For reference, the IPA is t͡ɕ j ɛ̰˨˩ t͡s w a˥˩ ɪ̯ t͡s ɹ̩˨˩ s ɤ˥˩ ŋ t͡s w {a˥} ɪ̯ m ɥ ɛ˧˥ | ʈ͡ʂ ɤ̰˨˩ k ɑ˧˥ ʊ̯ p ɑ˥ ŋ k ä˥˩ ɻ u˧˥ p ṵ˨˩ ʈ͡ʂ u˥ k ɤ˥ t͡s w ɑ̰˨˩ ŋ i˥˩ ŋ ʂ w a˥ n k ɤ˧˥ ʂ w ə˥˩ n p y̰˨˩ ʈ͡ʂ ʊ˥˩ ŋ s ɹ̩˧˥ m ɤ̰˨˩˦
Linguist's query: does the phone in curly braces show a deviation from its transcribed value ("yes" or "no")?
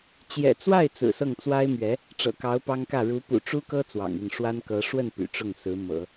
no